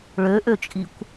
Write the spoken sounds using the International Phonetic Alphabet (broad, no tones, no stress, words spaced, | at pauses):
ɭøʔøt͡ʃʼikʷ